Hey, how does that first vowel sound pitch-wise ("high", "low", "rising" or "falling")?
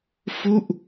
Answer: falling